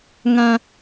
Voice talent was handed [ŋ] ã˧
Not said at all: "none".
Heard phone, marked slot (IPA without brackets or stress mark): ŋ